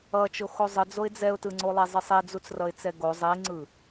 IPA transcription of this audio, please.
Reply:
ʌ t͡ʃ o x o zˤ ɯ d͡z o ɪ̯ d͡z ɛ ʊ̯ t ɯ ŋ͡ǀ o lˠ e zˤ ɯ sˤ i d͡z u t͡s r ʌ ɪ̯ t͡s ɛ ɡ o zˤ i ŋ͡ǀ ɯ

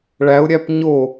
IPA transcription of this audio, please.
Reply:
ɭ æ ʊ̯ ɾʲ æ p ɲ o

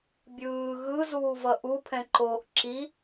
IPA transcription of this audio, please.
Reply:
bʲ ɯː ɣ ɯ z uː v ʌ ʔ u pʰ ɛ̃ ǃ oː ʔ ǁ i

